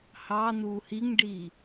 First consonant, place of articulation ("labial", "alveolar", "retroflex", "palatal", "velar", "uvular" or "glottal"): glottal